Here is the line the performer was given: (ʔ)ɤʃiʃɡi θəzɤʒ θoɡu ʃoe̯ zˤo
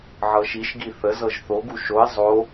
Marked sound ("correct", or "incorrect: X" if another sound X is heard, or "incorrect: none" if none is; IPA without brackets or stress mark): incorrect: ʕ